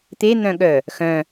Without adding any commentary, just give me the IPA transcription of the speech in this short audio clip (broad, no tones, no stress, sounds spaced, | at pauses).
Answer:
t̪ e n̪ œ̃ ɠ œ | x œ̃